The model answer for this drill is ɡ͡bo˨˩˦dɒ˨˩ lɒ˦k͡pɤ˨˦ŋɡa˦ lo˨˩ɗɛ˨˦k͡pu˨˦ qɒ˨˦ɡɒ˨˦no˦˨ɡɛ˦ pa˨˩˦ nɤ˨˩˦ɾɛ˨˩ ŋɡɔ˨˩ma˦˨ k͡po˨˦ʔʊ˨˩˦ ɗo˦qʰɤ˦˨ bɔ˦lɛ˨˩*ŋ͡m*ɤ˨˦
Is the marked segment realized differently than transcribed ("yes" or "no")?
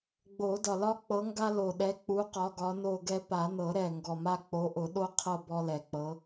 yes